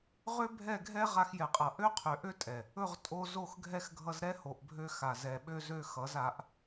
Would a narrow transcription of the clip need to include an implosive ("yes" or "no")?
yes